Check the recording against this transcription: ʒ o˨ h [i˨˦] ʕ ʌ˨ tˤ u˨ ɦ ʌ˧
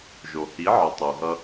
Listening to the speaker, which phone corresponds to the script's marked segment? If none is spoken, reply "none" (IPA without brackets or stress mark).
i˨˦